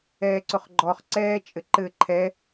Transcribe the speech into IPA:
ɛː ǀ ʊ χ ɡ͡ǃ ɔ χ ǀ ɛː t͡ʃʼ ɘ ǃ ɘ ǃʰ ɛ

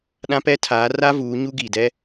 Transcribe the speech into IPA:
ɗ ã˦ p ɛ˦ tʰ aː˨˦ r a˦ v uː˨˦ ɲ u˦ ɡ iː˨ d ɛ˦

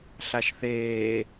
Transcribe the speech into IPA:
ɬ a ʃ θ eː

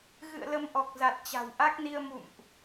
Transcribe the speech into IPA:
ɣ ɨ̰˧˨ ə̯ l ə˧ m ʔ ɔ˨˩ k̚ z a˨˩ t̚ t͡ɕ a̤˨˩ w ʔ a˦˥ k̚ n i˧ ə̯ m ṵ˧˨ m ʔ

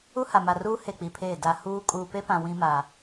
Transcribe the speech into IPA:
u˦ h a˨ m a˨ r uː˦ h e˦˨ k͡p i˨ pʰ eː˦˨ d a˨ h uː˦ kʼ uː˨ p e˦ p ã˨ w ĩ˦ m a˨

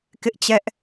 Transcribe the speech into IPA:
k ɪ˦ ʔ t͡ɕ ɛ˦ ʔ

